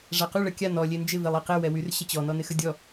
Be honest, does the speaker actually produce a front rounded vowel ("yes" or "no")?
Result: yes